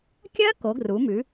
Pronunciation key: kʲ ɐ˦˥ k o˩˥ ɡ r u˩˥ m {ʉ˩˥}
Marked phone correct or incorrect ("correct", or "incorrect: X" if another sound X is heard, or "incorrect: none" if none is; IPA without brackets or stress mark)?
correct